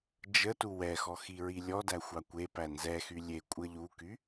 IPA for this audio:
d͡ʒ ə t u w ɛ x ɔ x i ɹ i lʲ ɔ d æ xʷ ɑ kʷ e p æ n z ɛ x y lʲ e kʷʼ ə ʎ u k y

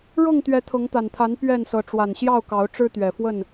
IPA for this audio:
ɻ ɤ˥˨ ŋ t̪ ɥ ɛ˨˦ t̪ʰ ɤ˨˦ ŋ t̪ a˨˩ n t̪ʰ a˨˦ n p ɥ ɛ˥˨ n s ɤ˨˦ ʈ͡ʂ w a˨˩ n ɕ j ɑ˥˨ ʊ̯ k ɑ˨˦ ʊ̯ ʈ͡ʂ ɻ̩˦ t̪ ɥ ɛ˨˩ f w ə˥˨ n

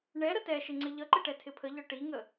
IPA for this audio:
ɳ ɛ ɾ ə t ɛ ʃ ɪ ŋ͡ǀ ɪ ʎ ʌ ǃ ɪ ʈ ɛ tʰ ɪ pʰ ə ʎ ɒ ʈ i ŋ ə

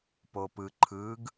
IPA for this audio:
p o p ɯ ǃʰ ɯ ɡ

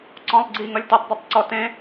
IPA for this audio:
ǀ ɔ̃ lˠ ɡ͡ǀ i ŋ ʌ lʲ t e tˤ dˤ ɛ tˤ ǀ ɔ t ẽ

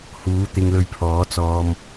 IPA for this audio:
h uː˨˥ t̪ ɪ˧ ŋ l ɵ˧ ɥ pʰ ɔː˨˥ t͡s ɔː˧ m

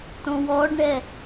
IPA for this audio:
t õ w ɔ ɖ ɳ ɛ

